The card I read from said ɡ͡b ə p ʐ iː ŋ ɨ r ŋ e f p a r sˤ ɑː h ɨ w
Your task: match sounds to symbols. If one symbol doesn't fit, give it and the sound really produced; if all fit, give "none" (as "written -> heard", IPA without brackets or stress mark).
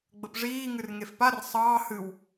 none